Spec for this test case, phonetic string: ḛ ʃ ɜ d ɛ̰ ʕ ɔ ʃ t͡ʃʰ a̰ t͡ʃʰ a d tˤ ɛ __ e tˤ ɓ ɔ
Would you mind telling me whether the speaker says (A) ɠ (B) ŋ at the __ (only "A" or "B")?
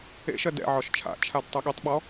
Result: A